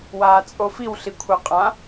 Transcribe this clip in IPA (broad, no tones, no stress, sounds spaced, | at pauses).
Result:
w aː t͡sʼ o f i w ɬ i kʷʰ ɐ qʼ ã